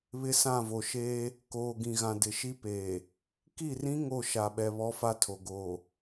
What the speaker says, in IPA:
β ɪ˦ s ã˦˨ v o˨ ʃ eː˦ | k oː˨ ɡ ĩ˨ ɣ ã˨ d ɪ˨ ʃ i˦ p eː˨ | k i˦˨ r ĩ˦ ŋ o˦˨ ʃ a˨ ɓ ɛ˨ β ɔ˦ f a˦ tʰ o˨ ɡ oː˨

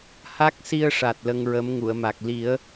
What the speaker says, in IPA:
h a˦˥ k̚ s i˧ ə̯ ʂ a˨˩ t̚ l ə˧ ŋ ɹ ə˧˥ m ŋ u˨˩˨ ə̯ m a˨˩ k̚ l i˨˩˦ ə̯

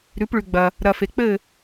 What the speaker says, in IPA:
ɾ ʉ˨˥ p ɭ ʉ˧ ɡ͡b ɐ˧ | ɾ ɐ˧ f e˧ k͡p ɘ˥˧

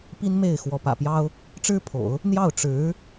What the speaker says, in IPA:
p i˥ n m e˥˩ ɪ̯ x w ɔ˧˥ p ä̰˨˩ p j ɑ˥ ʊ̯ | ʈ͡ʂ ɻ̩˥ pʰ o̰˨˩˦ ʊ̯ | n̪ j ɑ˥˩ ʊ̯ ʈ͡ʂ ɻ̩˧˥

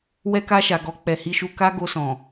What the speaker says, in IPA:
w ɛ˧ k a˧ ʃ a˨ ɡ ɔ˧ k͡p ɛ˨ h i˧ ʃ u˧ k a˦ ɡ o˧ s ɔ̃˨

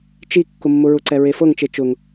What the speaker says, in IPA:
t͡ʃ i kː ʊ mː ʊ ɹ ʊ ǀ ɛ ɹ e f ɤ ŋ t͡ʃ e t͡ʃ ʊ ŋ

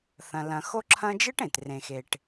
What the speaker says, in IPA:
θ ɐ̃˨ l ɐ̃˨ x o˦ ǁʰ ɐ̃˦ d͡ʒ ɨ˥ ʈ ẽ˩ t r ẽ˩ x e˩ ʈ

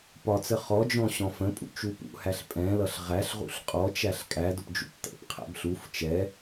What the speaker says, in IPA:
p ɒ t͡s ə χ ɔ d͡ʒ ɔ̃ ɕ ɔ̃ f ə̃ pʼ ṵ t͡ʃ u p ṵ h æ ɬ pʼ ɛ̃ l ʌ ɬ ʁ æ ɬ ʁ ṵ ɬ qʼ ɔ t͡ʃ æ ɬ kʼ æ d ʊ p d͡ʒ ṵ p t̪ ɛ̰ p qʰ æ̰ b ɬ u f t͡ʃ ɛ

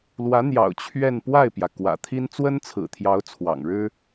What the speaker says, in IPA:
l w ä˧˥ n̪ j ɑ̰˨˩ ʊ̯ t͡ɕʰ ɥ ɛ˥˧ n p w a˥˩ ɪ̯ p j ä˩ k w ä̰˨˩ t̪ʰ i˥ n t͡s w ə˥ n t͡sʰ ɹ̩˨˩ t̪ʰ j ɑ˧˥ ʊ̯ t͡sʰ w ɑ̰˨˩ ŋ ɻ ɻ̩˥

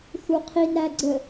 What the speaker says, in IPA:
θ u qʰ i n ɾ æ ɡ͡ǀ ə

